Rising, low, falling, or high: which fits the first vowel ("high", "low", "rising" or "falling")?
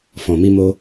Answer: low